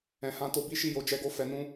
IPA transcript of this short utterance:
ɛ̃˨hã˧ to˧bi˦ʃi˦˨jo˧ d͡ʒɛ˧ɡo˧ fɛ˧nũ˦

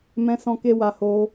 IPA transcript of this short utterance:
mɛ̃˦sɔ̃˦ke˦wa˧ ho˧

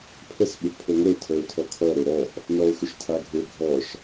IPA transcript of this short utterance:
pʰəs ɓʏʔpʰoŋʷəʊ̯ tʰəʊ̯ tʰɔkʰɔɾø ɾɔʔ | nɔʊ̯xʏʃtʰaɡʱø ɡʱɔʃ

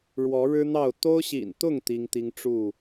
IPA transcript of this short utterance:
ɻwɔ˨˦ɻɻ̩˦n̪ɑ˥˨ʊ̯ t̪o˦ʊ̯ɕḭ˨˩nt̪ʊ˥˨ŋ t̪i˦ŋt̪i˦ŋ ʈ͡ʂu˥˨

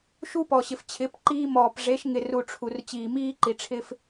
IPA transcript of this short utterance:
ʃu˦ pɔ˨ɕɪ˨ft͡ɕʰɪ˨˦p ǃiː˦mɔː˨p ʐe˨˦ʃ ŋɪ˨ru˨ ʈ͡ʂʰu˨r t͡ɕiː˨miː˦ǃi˨ʈ͡ʂʰɪ˦f

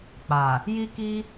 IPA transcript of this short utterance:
k͡pa˨ | ji˦ki˦

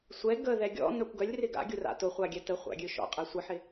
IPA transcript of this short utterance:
sʷɛ ɡəðɛ ɡʲɔ̰ nœkʷɡœlʲrɪ ɡa̰ɡʲʊ ra̰tʊχʷa ɡʲɛtəχʷa̰ ɡʲøʃɔ̰qʼɛ sʷəħɪ

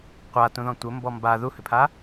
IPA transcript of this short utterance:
qʷatũðɔ̃ tʷɘmbɔ mba ðuhʏpʰa

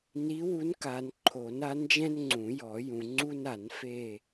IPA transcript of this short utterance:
ni˧˥wu˧˥n ka˨n ǃʰo˨˩˦na˧˥nd͡ʒɛ̃˥n ŋ͡ǀũ˨˩˦jɔ˨˩˦jũ˨ŋ͡ǀu˥n a˨˩˦nfe˦˨

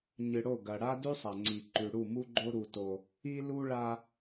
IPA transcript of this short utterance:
ɲɨ˨ɽo˦˨ɡɐ˨ ɽa˦dʉ˦sˤa˨ŋ͡ǀi˨ ǃʉ˨ɽu˦˨mu˦ɡ͡ǃo˦ ɾu˦to˦ | i˦lu˦ɭa˦

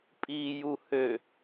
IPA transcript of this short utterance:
pʼiːjuhø

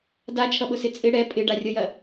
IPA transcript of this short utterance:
dat͡ʃʰʌɓʊsɪ t͡sʼɪ ɽɛ pʼɪɖarʲʌjɐ

